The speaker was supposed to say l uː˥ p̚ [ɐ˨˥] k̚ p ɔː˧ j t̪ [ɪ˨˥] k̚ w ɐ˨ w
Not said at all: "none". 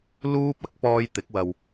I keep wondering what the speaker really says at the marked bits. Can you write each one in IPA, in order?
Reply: ɐ˨˥, ɪ˨˥

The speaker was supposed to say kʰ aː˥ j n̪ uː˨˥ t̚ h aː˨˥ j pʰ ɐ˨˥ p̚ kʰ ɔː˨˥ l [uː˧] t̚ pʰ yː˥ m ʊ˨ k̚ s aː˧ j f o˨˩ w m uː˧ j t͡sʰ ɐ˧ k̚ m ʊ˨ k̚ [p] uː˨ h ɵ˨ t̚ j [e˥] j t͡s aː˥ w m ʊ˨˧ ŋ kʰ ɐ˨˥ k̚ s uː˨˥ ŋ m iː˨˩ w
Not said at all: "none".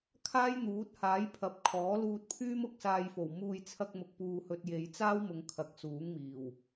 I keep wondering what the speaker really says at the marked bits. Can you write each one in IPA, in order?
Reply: uː˧, p, e˨˧

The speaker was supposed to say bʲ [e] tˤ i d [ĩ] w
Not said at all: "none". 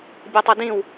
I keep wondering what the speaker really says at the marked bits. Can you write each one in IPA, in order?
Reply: e, ĩ

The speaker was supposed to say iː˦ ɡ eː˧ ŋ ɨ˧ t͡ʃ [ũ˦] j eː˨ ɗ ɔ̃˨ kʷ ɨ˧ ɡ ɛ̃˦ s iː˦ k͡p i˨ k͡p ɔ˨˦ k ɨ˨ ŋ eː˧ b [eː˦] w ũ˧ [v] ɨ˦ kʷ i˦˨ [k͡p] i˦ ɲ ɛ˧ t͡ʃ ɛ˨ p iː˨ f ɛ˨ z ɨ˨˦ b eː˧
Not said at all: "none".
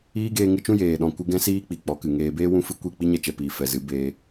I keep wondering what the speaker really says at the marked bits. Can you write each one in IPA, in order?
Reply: ũ˦, eː˦, f, k͡p

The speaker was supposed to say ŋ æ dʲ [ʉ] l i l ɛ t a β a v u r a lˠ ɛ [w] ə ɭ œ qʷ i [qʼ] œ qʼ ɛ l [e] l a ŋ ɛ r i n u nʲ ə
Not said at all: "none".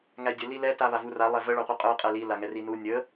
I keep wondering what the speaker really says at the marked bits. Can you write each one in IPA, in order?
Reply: ə, v, qʼ, i

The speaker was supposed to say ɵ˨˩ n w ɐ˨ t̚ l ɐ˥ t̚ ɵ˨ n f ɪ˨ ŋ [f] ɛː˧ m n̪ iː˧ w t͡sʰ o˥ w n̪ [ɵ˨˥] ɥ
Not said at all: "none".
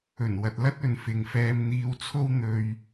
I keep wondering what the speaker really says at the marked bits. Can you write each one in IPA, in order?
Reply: f, ɵ˧

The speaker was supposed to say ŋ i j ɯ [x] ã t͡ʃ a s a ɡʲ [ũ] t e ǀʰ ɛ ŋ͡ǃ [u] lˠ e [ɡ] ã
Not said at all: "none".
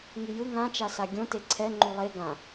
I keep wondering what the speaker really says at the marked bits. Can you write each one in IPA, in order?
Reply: ŋ, õ, u, ɡ

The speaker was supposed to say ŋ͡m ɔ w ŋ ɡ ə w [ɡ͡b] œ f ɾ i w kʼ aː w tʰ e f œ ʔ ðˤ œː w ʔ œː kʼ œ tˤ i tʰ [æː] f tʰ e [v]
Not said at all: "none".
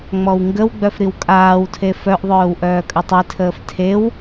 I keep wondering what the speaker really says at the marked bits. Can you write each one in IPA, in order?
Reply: ɡ͡b, əː, w

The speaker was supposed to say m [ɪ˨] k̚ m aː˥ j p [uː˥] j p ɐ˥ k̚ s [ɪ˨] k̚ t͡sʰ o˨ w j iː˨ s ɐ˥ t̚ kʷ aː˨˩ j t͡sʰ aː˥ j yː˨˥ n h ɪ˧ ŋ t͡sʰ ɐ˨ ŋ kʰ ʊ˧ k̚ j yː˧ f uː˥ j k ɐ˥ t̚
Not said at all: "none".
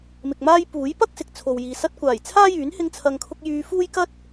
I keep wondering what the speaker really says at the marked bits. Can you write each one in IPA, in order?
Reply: ɪ˨, uː˨˥, ɪ˨

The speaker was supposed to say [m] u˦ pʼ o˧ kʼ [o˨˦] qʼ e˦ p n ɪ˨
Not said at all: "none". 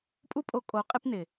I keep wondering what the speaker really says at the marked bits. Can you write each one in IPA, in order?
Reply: pʼ, o˨˦

